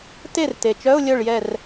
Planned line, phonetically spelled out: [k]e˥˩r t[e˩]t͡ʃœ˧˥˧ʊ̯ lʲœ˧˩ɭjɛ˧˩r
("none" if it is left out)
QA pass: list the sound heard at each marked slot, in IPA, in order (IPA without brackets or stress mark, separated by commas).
t, e˩